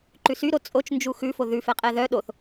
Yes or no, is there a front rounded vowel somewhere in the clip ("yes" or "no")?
yes